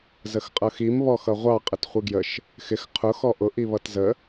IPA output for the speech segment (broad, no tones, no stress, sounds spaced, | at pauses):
z ə x qʼ ʌ x i m β ɔ x ʌ ʁʷ ɑ qʼ ə t χʷ i ɡ j ə ʃ | x ɪ x qʰ ʊ x ɔ ʔ ʊ ʔ i β ʌ t z ə